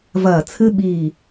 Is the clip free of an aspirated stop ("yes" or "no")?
no